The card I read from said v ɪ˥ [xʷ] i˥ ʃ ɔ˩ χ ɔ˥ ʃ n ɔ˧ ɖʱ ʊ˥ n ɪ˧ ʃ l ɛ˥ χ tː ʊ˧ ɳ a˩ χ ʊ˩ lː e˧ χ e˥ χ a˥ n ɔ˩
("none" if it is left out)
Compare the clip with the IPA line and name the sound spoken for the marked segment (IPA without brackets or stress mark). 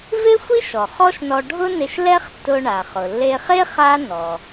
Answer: xʷ